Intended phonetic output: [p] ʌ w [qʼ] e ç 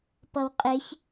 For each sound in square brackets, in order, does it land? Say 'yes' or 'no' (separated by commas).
yes, yes